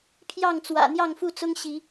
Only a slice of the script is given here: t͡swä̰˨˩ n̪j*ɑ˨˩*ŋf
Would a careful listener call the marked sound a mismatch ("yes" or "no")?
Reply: yes